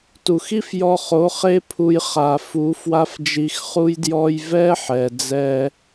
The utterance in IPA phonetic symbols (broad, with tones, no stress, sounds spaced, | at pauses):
t u˨ x i˦ f j ɔ˧ χ o˨˦ χ e˦ pʰ u˧ j χ a˨ f u˨˦ f w a˦ f d͡ʒ i˧ x χ u˦ j d j ɔ˧ j v ɛ˦ ħ ɛ˨ d͡z ɛ˧